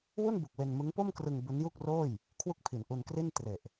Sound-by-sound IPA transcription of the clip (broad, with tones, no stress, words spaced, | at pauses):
wu˥˩nbu˨˩k̚ we˧nmɯ˦˥ŋpo˥˩mkrɯ˧ŋ bu˦˥nju˥˩k̚roː˥˩j | kʰwu˥˩k̚pʰi˩˦n ʔu˧n kri˥˩n tre˨˩ʔ